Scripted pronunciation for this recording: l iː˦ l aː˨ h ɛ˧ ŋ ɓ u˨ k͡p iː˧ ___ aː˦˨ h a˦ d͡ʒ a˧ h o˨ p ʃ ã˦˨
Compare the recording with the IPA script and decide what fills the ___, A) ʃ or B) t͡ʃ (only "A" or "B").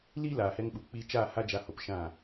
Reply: B